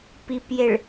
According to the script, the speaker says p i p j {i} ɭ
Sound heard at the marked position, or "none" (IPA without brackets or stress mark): e